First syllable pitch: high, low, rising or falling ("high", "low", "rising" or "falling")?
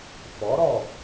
rising